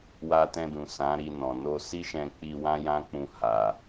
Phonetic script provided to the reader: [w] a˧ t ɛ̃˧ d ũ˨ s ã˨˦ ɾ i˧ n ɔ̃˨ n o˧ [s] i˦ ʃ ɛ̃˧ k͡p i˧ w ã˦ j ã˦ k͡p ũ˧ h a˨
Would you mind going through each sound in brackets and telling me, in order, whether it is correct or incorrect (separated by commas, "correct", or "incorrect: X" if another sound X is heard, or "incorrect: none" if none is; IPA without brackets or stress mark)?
correct, correct